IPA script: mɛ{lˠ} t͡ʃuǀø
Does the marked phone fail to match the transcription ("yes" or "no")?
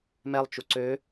no